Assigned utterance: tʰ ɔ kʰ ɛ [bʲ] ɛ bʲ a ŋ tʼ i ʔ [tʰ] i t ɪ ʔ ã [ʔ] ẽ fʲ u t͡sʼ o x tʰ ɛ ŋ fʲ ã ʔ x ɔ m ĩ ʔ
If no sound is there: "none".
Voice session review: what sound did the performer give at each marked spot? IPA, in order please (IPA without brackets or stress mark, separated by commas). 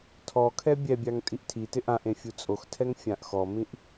bʲ, tʰ, ʔ